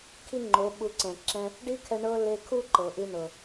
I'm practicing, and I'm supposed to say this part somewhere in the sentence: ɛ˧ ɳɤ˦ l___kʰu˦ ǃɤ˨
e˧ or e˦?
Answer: e˧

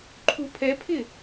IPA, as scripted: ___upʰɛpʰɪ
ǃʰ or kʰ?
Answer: ǃʰ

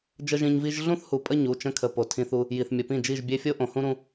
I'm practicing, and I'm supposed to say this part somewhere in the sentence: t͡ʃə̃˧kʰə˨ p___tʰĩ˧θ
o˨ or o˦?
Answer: o˨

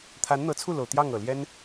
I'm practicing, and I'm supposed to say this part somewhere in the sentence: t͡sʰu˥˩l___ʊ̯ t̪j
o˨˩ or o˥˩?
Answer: o˨˩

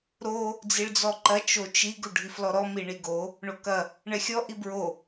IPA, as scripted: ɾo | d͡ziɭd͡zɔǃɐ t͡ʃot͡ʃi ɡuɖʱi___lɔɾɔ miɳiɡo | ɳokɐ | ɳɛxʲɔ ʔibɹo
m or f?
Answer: f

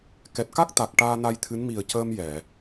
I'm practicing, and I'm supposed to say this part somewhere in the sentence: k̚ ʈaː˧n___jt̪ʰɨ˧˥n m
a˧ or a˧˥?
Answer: a˧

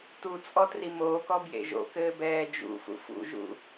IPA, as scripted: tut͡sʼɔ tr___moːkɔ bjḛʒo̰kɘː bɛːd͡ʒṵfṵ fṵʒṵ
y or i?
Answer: i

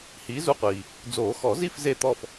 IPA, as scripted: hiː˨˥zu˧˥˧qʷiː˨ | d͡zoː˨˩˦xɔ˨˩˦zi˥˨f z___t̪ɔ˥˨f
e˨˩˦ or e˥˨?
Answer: e˥˨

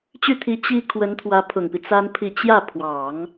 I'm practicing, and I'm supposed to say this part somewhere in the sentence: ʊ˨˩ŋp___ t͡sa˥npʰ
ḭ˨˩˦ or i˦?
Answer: i˦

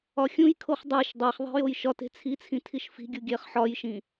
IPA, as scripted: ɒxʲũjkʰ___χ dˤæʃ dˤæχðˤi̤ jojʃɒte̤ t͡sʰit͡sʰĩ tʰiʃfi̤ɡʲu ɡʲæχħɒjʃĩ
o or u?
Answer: o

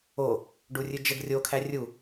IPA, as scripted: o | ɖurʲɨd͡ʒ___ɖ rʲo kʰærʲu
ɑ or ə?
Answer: ə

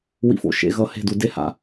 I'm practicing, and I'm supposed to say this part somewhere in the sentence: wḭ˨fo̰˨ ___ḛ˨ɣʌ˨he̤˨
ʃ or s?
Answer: ʃ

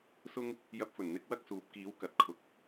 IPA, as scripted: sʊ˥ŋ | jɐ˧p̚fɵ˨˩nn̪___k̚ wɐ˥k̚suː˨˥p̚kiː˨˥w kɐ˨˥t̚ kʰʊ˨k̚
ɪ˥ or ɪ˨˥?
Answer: ɪ˨˥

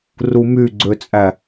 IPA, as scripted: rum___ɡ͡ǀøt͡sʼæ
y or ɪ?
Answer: y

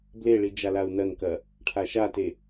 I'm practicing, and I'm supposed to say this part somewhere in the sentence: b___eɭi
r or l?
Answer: l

